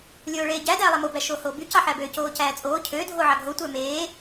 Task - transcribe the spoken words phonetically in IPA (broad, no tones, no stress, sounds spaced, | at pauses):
lʲ oː ɭ eː ɟ æ d æː lˠ æ m o b æ ʃ oː h oː b y c ɑ ħ æ b ø c oː c æː t͡sʼ oː cʰ ø dʱ o ʕ ɑ ɡʱ o tʷ æ m eː